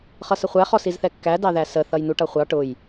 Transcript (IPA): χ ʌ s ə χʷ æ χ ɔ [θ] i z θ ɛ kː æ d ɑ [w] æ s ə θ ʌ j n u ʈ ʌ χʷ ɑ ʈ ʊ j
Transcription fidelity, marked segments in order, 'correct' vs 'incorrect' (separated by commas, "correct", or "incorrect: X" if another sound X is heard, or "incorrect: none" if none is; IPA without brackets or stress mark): incorrect: s, incorrect: ð